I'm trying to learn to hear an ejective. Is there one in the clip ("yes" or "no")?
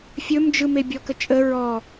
yes